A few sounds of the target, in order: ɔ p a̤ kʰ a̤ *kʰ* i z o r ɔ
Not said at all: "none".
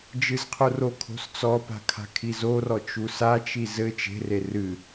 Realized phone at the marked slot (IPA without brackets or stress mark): kʰ